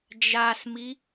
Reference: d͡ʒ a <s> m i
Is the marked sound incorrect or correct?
correct